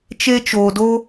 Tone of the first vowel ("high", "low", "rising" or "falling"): high